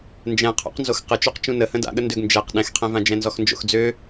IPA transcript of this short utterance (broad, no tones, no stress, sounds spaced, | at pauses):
n d͡ʒ ɛ̃ qʰ o̰ q n z o x q ə t͡ʃ ø q t͡ʃ ũ n ə h ə̃ d a̰ ɠ ə n d ø ɡ n d͡ʒ ɛ q ɗ ɛ̃ x qʰ ɛ̃ v ã d͡ʒ ɛ̃ n z ɔ x n d͡ʒ o̰ x d͡z ø